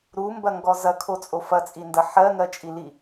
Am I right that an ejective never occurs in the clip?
no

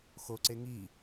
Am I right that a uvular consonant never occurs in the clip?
yes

